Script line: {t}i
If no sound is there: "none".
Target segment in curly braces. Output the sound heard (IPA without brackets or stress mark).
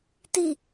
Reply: t